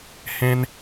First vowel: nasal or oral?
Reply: nasal